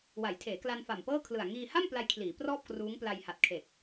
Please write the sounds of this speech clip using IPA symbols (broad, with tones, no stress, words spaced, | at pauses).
wa˩˦jtʰeː˩˦kla˧n fa˨˩mpɤː˥˩kʰlɯ˨˩a̯ ŋiː˧ha˥˩m pla˧jkʰliː˩˦ prɔː˥˩p̚ kruː˦˥ŋpla˧jha˨˩t̚ kʰe˨˩k̚